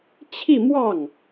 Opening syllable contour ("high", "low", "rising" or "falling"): falling